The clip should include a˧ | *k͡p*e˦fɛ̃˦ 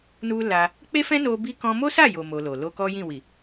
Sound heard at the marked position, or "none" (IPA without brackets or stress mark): k͡p